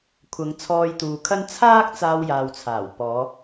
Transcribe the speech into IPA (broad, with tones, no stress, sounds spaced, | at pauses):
kʷʰ ɐ˨˧ ŋ t͡sʰ ɔː˧ j t̪ uː˨ kʰ ɐ˥ n t͡sʰ aː˥ k̚ t͡s aː˧ w j aː˨ w t͡sʰ aː˨˩ w p ɔː˨˧